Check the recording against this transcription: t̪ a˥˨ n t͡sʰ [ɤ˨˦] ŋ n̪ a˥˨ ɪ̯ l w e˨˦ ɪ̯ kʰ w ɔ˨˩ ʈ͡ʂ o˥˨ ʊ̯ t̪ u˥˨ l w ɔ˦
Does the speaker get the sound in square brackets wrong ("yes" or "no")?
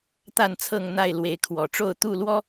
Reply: yes